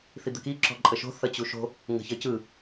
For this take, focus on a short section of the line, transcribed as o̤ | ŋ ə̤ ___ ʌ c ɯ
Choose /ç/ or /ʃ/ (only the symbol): ç